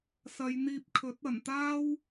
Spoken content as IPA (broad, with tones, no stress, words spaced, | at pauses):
sɐ˨˧jn̪iː˧p̚kʰɵ˨˥t̚ ɐ˨˩nt̪aː˥w